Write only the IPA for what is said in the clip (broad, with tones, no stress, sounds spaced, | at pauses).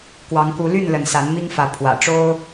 k w ɑ˨˦ ŋ k u˨˦ l y˥˨ n l ə˨˦ n s a˨˦ n m i˦ ŋ f ä˨˦ pʰ w ä̰˨˩ ʈ͡ʂ o˦ ʊ̯